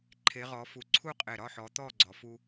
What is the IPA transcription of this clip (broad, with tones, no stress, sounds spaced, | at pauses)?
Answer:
ǃʰ e˨˦ ʁ ɔ˨˦ f u˧˩ ǀʰ u˥˨ qʼ e˧˩ ɾ ɒ˥˨ ħ ɔ˨˦ t̪ ɔ˥˨ ɡ͡ǀ ɔ˨˦ f u˦